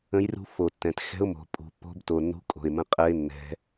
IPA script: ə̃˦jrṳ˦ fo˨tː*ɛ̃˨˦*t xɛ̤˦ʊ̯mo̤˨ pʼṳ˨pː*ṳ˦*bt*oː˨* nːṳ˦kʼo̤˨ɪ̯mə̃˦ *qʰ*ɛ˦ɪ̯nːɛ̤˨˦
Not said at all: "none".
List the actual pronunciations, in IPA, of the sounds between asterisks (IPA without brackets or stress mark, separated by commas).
ɛ̃˨, o̤˦, o˨, qʼ